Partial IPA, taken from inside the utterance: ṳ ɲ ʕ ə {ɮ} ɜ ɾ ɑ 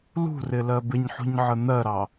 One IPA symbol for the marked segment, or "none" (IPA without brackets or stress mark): n̪